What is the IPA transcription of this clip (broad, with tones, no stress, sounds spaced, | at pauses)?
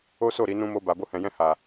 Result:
o˦ s o˦˨ ɾ i˧ n ũ˧ m o˧ b a˨ b o˧ h ɛ̃˨ j ɛ̃˧ h a˨